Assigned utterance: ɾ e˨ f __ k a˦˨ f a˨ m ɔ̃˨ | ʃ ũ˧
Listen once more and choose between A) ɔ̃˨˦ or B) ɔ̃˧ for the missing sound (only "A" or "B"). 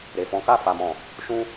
A